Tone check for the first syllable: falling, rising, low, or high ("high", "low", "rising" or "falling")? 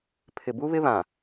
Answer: low